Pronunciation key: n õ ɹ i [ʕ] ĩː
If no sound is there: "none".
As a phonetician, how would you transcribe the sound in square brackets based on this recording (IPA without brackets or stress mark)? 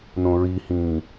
h